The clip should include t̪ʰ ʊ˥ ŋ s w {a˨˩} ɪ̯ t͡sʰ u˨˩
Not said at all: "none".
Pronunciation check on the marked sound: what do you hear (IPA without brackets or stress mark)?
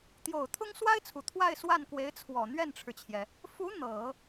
a˥